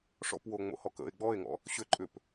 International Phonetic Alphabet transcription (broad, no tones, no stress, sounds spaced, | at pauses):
ʂ ɔ̰ p w o ŋ͡m o̰ h ɔ k ə̰ e̯ ɡ͡b ɔ e̯ ŋ ɔ̰ | ɕ ʏ ǃʼ ʏ p